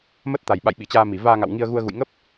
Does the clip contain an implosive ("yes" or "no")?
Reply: yes